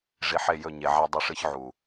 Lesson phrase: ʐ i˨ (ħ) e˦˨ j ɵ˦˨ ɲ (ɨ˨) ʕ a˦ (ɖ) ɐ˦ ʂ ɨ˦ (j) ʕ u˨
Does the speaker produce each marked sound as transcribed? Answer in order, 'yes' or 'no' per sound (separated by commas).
yes, no, no, no